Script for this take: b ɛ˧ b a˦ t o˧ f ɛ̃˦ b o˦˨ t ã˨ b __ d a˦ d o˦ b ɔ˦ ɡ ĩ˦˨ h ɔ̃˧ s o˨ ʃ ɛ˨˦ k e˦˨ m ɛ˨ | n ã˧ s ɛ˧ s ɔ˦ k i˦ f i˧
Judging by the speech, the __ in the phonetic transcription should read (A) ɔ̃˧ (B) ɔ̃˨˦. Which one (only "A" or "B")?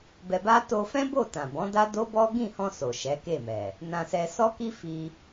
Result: B